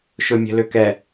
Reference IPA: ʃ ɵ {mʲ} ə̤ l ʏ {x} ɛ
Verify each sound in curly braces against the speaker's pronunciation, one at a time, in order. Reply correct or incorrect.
correct, incorrect

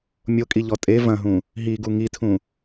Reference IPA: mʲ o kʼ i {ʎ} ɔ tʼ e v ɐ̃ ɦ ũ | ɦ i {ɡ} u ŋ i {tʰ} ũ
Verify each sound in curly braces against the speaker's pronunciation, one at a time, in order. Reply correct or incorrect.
correct, correct, correct

